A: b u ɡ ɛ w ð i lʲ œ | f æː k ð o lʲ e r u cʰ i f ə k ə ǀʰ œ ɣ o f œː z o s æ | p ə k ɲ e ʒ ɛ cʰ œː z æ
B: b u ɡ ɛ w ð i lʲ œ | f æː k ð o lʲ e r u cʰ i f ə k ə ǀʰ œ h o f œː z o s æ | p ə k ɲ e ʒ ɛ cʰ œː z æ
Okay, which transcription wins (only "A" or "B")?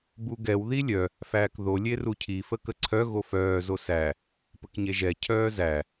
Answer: A